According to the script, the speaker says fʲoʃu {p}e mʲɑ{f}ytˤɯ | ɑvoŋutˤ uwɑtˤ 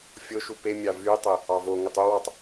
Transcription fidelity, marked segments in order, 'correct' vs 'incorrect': correct, incorrect: v

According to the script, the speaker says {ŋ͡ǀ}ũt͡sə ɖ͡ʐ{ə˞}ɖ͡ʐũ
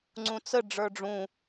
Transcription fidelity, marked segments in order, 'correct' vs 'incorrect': correct, correct

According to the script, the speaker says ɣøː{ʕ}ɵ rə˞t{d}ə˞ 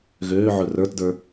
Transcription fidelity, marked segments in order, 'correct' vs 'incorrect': correct, correct

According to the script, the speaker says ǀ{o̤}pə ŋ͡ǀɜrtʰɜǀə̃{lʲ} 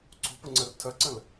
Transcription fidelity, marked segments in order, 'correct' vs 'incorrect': correct, incorrect: l

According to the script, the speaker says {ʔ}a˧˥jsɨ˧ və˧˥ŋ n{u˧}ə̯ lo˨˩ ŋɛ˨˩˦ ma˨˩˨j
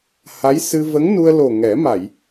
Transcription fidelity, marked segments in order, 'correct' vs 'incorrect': incorrect: h, correct

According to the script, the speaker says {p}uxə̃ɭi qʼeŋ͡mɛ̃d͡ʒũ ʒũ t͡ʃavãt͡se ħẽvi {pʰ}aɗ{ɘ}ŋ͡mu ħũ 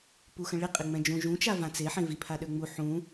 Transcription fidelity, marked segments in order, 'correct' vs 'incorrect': correct, correct, incorrect: ø

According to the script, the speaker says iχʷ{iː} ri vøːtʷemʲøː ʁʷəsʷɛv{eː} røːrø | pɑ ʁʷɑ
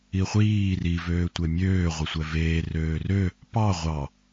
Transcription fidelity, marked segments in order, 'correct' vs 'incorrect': correct, correct

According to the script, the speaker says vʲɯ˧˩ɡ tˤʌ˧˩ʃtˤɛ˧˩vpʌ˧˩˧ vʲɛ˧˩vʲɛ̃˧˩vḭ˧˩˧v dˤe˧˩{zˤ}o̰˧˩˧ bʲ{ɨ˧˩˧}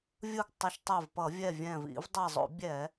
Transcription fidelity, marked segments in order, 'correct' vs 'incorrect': correct, incorrect: ɛ˧˩˧

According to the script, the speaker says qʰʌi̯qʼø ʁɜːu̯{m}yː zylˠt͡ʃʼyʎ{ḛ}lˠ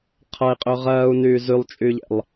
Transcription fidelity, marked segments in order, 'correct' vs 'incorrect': incorrect: n, correct

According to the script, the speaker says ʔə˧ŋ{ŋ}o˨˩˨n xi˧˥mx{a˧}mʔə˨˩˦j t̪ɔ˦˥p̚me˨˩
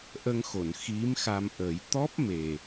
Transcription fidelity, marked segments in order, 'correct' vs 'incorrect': incorrect: x, correct

